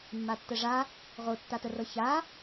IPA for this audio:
mː a tː ə ʐ a | ʁ o tː a t ə r ɤ ç a

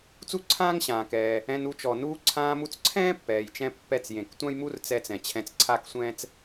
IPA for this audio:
t͡s u˥ ǀʰ ãː˥ ŋ ɕ ãː˩ k ɛː˩ | ɛ̃˧ n u˧ t͡ʃ ɔ˩ n uː˧ ǀʰ ãː˧ m u˧ t͡s ǀʰ ɛ̃ː˥ pː ɛː˩ j t͡ʃ ɛ̃˧ pː ɛ˧ t͡s j ẽ˩ k tʷ ã˥ j m u˥ r t͡s ɛ˧ t͡s ɛ̃˩ t͡ɕʰ ɛ̃˧ t͡s ǀʰ a˥ k sʷ ɛ̃ː˥ t͡s

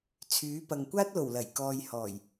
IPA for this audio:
t͡sʰ yː˨˥ p ɐ˨ ŋ kʷ aː˥ t̚ l o˨˩ w l ɐ˨˩ j k ɔː˨ j h ɔː˨˩ j

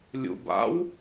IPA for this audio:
lʲ ṵ b a̰ w

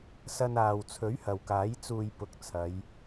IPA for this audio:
s ɐ˥ n aː˨ w t͡sʰ ɵ˨˥ ɥ h ɐ˨ w k aː˨˥ j t͡s uː˧ j p ʊ˨˥ k̚ t͡sʰ ɐ˨˧ j

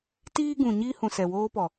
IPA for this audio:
t iː˦ ɡ ũ˨ ɲ iː˦ h ũ˨ s ɛ˨ w oː˦ p ɔ˨

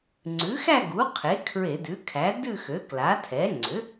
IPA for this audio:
ŋ͡ǀ ʉ˩˥ x æ˥˧ ɡ u˩˥ qʰ e˩˥ kʰ ɹ e˧˩˧ d ʉ˩˥ kʰ æ˩˥ d ʉ˥˧ x ø˩˥ k l a˩˥ tʰ ɛ˩˥ ŋ͡ǀ ʏ˩˥

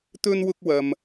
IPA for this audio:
t̪ ɵ˥ n w ʊ˥ k̚ w ɐ˧ m

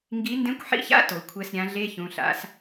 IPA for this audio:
ŋ ɡ i˧˥ n d ẽ˧˥ kʷ ħ ḭ˧˥ ç a̰˧˥˧ t o˨˩˦ kʷʰ ɛ˧˥˧ s ɾʲ ã˧˥ ɮ e˧˥˧ ç ũ˩˧˩ ɬ a̰˧˥ s

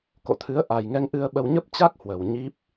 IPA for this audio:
k o̰˧˨ t̪ʰ ɨ˨˦ ə̯ ʔ a˨˩ j ŋ ɛ˧ ŋ ʔ ɨ˧ ə̯ ɓ ə˧ w ɲ ə˦˥ p̚ t͡ɕ a˦˥ k̚ h w ə˨˩ w ɲ i˦˥ p̚

